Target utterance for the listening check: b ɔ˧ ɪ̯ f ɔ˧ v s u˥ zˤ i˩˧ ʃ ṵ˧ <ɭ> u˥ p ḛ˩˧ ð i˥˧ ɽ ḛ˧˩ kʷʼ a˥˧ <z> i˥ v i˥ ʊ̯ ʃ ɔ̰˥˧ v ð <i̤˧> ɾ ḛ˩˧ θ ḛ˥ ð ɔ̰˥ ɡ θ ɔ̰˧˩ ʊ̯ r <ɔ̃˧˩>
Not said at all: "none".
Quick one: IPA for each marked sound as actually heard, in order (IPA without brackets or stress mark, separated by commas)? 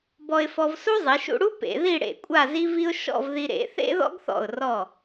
ɽ, z, i˧, ɔ˧˩